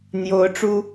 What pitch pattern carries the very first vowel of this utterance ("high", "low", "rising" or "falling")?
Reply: rising